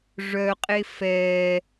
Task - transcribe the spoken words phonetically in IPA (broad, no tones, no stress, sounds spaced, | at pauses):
ʐ œ qʼ e f ɛ